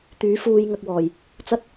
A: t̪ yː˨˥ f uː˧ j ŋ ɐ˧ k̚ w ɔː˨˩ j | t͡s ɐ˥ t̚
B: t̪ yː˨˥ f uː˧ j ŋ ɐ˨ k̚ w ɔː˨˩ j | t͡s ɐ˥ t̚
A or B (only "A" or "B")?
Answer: A